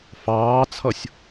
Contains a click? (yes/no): no